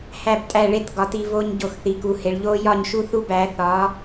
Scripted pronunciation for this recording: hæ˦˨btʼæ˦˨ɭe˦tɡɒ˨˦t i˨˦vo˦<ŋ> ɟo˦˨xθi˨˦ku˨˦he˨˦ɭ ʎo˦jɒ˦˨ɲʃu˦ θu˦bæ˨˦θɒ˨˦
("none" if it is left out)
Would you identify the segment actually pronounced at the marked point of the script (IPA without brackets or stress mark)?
ɲ